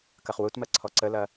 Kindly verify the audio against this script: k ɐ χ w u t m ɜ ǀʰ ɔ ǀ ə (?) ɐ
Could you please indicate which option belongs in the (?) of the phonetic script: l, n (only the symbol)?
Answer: l